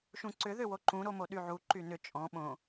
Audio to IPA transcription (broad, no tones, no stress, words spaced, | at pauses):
ʃũǀʏ ðʏwoǃũ ɾomoɗyʕu ǃynʏ t͡ʃʼɔ̃ ɓõ